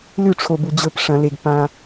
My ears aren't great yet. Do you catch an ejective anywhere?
no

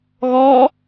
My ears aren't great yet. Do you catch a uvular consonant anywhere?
no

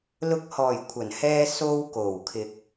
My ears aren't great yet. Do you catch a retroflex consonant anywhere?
no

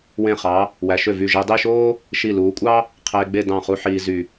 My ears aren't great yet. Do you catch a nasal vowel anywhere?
yes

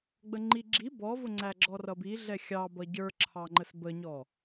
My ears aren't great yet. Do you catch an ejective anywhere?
no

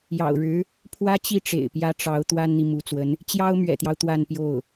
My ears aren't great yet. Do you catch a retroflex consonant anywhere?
yes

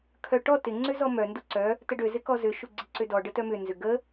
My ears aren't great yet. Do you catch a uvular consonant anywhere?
no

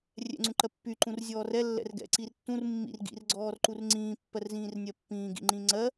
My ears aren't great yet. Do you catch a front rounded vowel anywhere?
yes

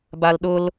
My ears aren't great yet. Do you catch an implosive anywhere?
yes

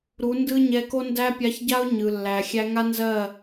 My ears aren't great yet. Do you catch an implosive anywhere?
no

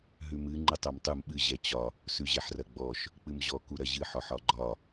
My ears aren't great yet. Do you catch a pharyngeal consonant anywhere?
yes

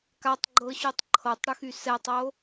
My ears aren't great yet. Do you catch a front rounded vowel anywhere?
yes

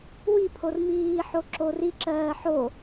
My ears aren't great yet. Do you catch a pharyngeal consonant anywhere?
yes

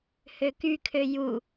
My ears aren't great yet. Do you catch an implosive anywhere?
no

